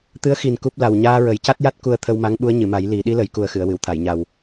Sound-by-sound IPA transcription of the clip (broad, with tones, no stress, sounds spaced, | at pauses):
t̪ ɨ˧˥ ə̯ x i˨˩ n k u˦˥ p̚ l a˨˩ w ɲ aː˧ ɹ ə˨˩˦ j c a˦˥ t̚ j a˦˥ t̚ k u˧ ə̯ t̪ʰ ə˧ w m a˧˥ ŋ ɓ u˧˥ ə̯ ɲ ɨ˨˩˨ m a˨˩˦ j l i˨˩˦ ɗ i˧˥ l ə˨˩˦ j k u˨˩ ə̯ x ɨ˨˩˨ ə̯ w ɨ˨˩˨ w t̪ʰ a˨˩˨ j ɲ a˨˩ w